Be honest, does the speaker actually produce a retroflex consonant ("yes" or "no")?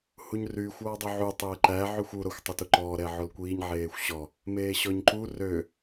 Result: no